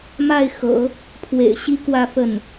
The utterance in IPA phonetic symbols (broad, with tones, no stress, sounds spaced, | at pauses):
m a˥˩ ɪ̯ x ɤ̰˨˩˦ | pʰ w ḛ˨˩ ɪ̯ ɕ i˥ k w ä˥˧ f ə˥˩ n